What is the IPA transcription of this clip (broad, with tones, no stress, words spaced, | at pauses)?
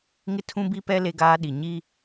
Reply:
ŋɪ˦˨tʰũ˦bi˦pɛ˦ le˦ɡaː˦ɗi˨ ɲi˦